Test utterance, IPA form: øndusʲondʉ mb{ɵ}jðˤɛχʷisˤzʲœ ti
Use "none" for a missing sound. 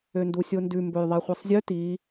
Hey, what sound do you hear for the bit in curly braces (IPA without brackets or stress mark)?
ɵ